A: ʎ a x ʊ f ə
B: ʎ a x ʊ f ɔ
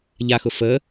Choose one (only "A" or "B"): A